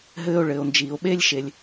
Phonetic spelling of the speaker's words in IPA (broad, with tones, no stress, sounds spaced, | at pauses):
ɦ ɘː˥ o̯ ɭ ɘː˩ o̯ n d͡ʒ iː˩ o̯ ɓ eː˥ lʲ ʃ e˩ lʲ